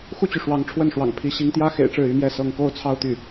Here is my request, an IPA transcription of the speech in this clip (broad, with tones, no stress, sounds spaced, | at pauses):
x u˥˩ t͡ɕ y˩ ʂ w ɑ˧˥ ŋ ʈ͡ʂʰ w ə˥˩ n ʂ w ɑ̰˨˩ ŋ pʰ i˧˥ ɕ i˧˥ ŋ t̪ j ä˥ x ḛ˨˩ ɪ̯ ʈ͡ʂ ɻ̩˥˩ y˧˥ m j ɛ˥˧ s ɤ˥˧ ŋ k o˥˧ ʊ̯ t͡sʰ ɑ˥˧ ʊ̯ t̪ y˥˩